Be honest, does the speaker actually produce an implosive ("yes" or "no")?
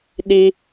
yes